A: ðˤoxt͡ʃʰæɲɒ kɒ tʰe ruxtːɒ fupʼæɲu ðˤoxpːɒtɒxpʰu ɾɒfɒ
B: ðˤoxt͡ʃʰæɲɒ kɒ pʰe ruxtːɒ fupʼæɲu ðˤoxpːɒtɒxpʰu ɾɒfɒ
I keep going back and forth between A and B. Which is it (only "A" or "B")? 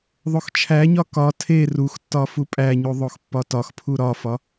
A